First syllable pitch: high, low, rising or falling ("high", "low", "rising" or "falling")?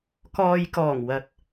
low